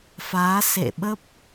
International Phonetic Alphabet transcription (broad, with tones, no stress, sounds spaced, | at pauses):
f aː˨˦ s ḛ˧˨ ɓ ə˦˥ p̚